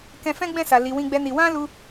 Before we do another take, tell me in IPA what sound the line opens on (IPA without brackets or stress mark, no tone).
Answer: k